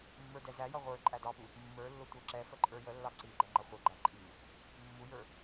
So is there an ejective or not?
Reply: yes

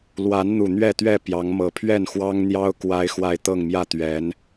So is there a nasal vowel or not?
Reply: no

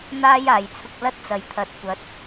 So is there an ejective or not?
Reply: no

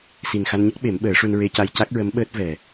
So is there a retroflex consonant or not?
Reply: yes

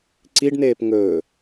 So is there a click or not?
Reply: yes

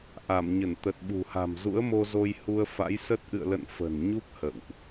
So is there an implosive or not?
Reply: yes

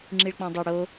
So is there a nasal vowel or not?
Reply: yes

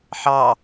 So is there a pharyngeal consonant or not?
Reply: yes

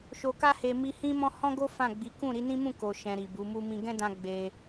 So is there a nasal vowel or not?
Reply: yes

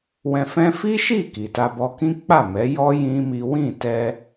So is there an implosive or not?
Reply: no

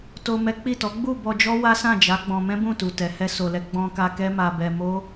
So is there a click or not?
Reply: no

